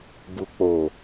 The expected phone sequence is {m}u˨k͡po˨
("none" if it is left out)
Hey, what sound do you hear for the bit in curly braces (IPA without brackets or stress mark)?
b